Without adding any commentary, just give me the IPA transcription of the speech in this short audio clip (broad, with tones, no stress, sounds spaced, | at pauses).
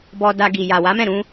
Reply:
b ɔ˧ d a˧ ɡ i˨ j a˨ w a˨˦ m ɛ̃˦˨ ɾ ũ˧